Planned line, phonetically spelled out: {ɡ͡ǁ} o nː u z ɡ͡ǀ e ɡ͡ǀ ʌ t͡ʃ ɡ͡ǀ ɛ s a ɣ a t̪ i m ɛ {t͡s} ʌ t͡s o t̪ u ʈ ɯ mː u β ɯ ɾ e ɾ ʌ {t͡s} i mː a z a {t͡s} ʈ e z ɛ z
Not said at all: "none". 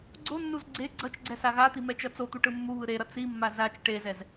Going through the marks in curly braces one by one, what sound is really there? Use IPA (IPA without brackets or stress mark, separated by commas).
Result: ɡ͡ǀ, t͡ʃ, t͡s, t͡ʃ